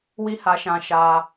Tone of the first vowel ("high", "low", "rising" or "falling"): high